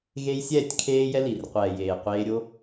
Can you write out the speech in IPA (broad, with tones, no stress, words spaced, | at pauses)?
ɣe˦j sʲɛː˦˨tʲ kʰeː˦jɛ˦li˨rqʷɛː˨ jeː˨qʷeː˧ɾʲo˦